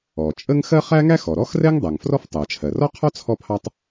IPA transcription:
ɔ˩t͡ʃʼə˥ŋ xɜ˥χæ˥ŋæ˥ xɔ˩ɾɔ˥xrɛ˥ŋ dˤɜ˩ŋfrɔ˥ftˤɜ˩ t͡ʃʰɜ˩rɔ˥qʰɔ˥ t͡sʰɔ˥pʰɑ˥tˤ

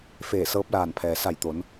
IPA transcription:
feː˧˩sɤː˧˥p̚laː˧˩npʰɛː˩ sa˧˩jt̪o˩˧n

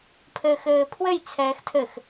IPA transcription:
pʰɘːxɘːpʰwɘj t͡sʰɛːxtʰɘx

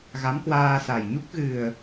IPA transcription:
ɣa˨˦mkwaː˧sa˨˩jɲu˦˥k̚ ɣɨ˨˩ə̯

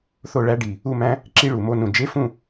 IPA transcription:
θo˥˨ɭæ˦˥ɖi˨˩ | u˥˨mæ̃˦˥ | ǁi˦˥ɭu˨˩mo˧˥˧nũ˨˩ d͡ʒe˦˥fũ˥˨

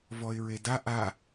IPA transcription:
vɔɪ̯ɹeda ʔa

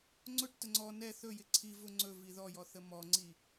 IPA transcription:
ŋ͡ǀʊʈtə ŋ͡ǀɔ nɛ θɵjɪ ǀʰivʊ ŋ͡ǀɵ viðɔjɔ θəmɔŋ͡ǀi

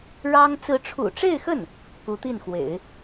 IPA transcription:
ɻɑ˥ŋ t͡sɹ̩˧˥ʈ͡ʂʰṵ˨˩ʈ͡ʂe˥˧ɪ̯xə˥˩n | ku˧˥t̪i˥˩nxwḛ˨˩˦ɪ̯

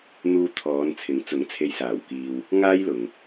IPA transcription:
n̪uː˧t̪ʰɔː˨˧nt͡sʰɪ˨˥ŋt͡sʊ˨˥ŋ t͡sʰe˨jsaː˨˩wkiː˨w | ŋaː˥jlʊ˨ŋ

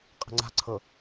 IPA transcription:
qʼə̤ŋ͡ǀa̤ǀʰɤ

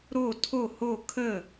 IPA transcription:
ɾo tʰo ho kʰə

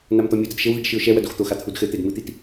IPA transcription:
namt̪ɔmʲudɐd ʃɘwðiɖ ʃɨʊ̯ʃɛwɐd oxt̪oxa t̪ʰudxɘt̪ed mɨt̪it

